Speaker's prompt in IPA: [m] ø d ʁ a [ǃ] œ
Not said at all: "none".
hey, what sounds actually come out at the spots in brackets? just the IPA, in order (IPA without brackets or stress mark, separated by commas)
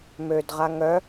m, ŋ